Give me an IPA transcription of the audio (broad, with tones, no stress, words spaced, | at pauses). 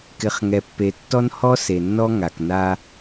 kɪ˨χŋɛ˨pːe˨ tːɔ˦nhɔ˦se˨nːɔ˦ ŋa˨kna˦